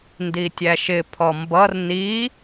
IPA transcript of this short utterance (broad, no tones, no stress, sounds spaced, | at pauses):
n d i tʲ æ ʃ ɪ pʰ ɔ m b ʌ r n i